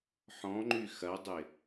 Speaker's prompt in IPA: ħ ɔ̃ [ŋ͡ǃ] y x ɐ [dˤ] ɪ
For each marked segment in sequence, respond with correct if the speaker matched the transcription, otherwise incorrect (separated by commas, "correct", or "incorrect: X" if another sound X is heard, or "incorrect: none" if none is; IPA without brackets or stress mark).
correct, correct